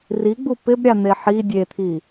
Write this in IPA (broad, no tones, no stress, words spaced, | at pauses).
riɡ͡bu pɪb ɾʲan̪eħi dʲet̪ʰi